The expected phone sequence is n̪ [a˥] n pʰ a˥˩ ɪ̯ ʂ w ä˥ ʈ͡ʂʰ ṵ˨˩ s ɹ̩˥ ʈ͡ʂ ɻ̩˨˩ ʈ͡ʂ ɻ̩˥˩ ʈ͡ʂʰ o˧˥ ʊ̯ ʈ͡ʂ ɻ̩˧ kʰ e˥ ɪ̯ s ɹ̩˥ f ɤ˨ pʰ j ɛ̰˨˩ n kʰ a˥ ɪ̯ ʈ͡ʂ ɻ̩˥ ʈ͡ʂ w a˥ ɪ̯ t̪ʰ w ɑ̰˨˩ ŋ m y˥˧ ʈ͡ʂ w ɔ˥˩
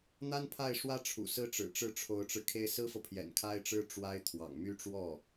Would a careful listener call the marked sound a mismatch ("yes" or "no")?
no